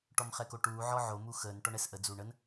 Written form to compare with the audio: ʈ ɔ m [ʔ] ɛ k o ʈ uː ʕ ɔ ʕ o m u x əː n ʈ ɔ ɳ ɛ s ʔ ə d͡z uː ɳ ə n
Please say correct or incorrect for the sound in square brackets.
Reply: incorrect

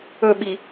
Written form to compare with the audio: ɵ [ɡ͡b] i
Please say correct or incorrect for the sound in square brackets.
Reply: incorrect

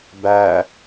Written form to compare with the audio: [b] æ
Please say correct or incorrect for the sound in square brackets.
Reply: correct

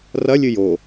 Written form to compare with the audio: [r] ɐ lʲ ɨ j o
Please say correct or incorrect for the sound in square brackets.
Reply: correct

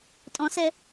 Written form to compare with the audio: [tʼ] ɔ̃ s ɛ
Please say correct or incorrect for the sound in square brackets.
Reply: correct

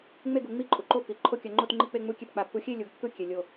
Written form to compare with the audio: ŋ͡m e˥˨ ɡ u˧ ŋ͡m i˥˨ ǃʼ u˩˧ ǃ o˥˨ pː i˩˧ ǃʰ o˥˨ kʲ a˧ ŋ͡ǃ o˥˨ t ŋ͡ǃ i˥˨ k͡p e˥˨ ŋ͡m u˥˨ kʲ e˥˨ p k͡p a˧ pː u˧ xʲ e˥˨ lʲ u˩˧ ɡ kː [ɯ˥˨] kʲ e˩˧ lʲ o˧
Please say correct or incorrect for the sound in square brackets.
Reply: correct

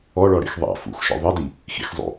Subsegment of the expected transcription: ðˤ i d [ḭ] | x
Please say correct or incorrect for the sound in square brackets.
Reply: incorrect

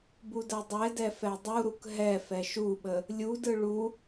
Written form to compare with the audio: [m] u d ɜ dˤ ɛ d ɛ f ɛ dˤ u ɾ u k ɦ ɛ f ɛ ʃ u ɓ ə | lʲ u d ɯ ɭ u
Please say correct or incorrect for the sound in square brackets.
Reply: incorrect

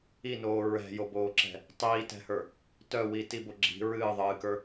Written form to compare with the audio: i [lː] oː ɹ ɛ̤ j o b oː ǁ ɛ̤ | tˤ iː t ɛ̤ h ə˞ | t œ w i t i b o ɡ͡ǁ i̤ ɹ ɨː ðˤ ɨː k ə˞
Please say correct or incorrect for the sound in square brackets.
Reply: incorrect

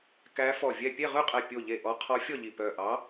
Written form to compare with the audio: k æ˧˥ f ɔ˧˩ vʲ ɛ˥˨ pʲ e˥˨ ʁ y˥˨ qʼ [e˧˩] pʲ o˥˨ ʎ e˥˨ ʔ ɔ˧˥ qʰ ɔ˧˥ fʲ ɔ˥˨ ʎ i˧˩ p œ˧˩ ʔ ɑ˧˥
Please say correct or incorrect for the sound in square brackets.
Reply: incorrect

